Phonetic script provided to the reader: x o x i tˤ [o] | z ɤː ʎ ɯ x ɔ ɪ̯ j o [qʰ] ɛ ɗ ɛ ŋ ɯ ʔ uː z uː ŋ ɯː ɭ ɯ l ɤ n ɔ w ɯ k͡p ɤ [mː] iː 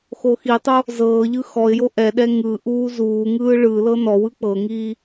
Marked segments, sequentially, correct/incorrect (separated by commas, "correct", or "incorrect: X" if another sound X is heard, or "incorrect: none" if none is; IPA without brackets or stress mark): correct, incorrect: ʔ, incorrect: ŋ